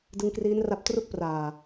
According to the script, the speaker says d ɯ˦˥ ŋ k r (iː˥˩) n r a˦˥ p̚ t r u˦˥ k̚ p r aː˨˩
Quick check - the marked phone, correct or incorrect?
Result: incorrect